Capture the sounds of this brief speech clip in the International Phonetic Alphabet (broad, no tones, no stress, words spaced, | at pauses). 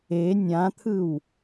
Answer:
e nʲãt̪ʰɯw